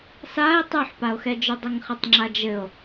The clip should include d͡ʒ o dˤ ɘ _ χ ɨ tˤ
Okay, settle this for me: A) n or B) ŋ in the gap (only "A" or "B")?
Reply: B